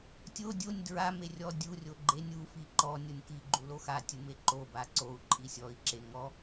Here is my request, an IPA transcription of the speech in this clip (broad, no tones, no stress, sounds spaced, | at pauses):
tʲ o dʲ o nʲ d ɹ a m e rʲ ɔ dʲ u rʲ o ɡ͡ǃ e nʲ u f i ǃ ɔ nʲ o nʲ k i ɡ͡ǃ u l o x a tʲ u m e ǃ o b a ǀ o u̯ ǃʼ i sʲ ɔ i̯ ǁ e ŋ ɔ